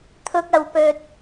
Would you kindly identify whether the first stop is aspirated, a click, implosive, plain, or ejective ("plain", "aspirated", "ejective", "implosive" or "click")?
aspirated